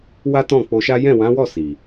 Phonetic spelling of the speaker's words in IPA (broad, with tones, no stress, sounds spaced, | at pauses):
w a˦ t ɔ̃˦˨ k͡p o˧ ʃ a˦ j ɛ̃˦˨ w ã˨˦ w ɔ˦˨ s i˨